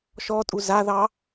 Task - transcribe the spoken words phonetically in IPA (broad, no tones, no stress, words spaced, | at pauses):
ʃɔtʼu zaðɑ